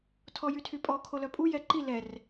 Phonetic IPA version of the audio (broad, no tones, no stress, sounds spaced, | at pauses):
tʰ ɔ j y tʰ y pʼ ɔ kʰ o l œ pʼ u j ɛ ǃ i l ɛ r